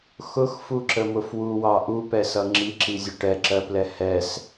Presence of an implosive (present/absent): absent